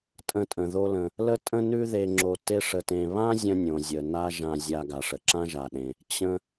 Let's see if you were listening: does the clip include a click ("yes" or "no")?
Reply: yes